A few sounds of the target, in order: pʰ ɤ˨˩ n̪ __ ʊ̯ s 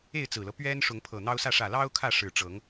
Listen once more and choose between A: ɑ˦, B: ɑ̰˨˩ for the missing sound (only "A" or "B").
A